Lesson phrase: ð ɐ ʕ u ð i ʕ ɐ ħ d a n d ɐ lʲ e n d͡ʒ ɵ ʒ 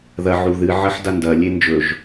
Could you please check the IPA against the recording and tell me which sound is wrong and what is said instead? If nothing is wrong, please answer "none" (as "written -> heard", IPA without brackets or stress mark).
i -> ɨ